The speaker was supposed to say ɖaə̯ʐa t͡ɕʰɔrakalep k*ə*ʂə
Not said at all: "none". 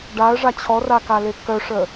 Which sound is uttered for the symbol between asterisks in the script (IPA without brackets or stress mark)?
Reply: œ